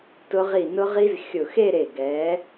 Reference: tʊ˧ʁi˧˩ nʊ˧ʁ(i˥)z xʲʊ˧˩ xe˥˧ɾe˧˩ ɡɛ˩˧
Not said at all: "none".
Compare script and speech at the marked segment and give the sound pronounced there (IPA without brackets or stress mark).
i˧